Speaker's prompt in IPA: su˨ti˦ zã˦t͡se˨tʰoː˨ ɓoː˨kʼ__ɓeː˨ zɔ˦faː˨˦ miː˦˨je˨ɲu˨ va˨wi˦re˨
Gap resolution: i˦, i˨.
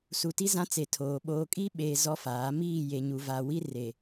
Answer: i˦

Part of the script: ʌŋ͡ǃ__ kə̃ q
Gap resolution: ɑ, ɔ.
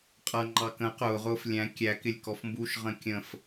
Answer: ɑ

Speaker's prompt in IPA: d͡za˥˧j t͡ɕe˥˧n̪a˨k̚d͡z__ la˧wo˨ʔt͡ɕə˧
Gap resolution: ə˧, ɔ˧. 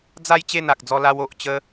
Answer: ɔ˧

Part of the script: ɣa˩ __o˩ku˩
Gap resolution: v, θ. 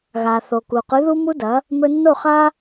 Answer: θ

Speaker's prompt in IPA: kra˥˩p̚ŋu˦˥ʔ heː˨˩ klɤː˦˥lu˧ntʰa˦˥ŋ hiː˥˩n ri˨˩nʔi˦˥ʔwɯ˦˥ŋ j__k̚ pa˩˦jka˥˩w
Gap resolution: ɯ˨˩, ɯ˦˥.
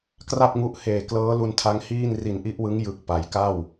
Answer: ɯ˨˩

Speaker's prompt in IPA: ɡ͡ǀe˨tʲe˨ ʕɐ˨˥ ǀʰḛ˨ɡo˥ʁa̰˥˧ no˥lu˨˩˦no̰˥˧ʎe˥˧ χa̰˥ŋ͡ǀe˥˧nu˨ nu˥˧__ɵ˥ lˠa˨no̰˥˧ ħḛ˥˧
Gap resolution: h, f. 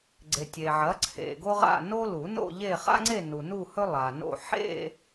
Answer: h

